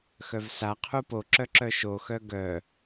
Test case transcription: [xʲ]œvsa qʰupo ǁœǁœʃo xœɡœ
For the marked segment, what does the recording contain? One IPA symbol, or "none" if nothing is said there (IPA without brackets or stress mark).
x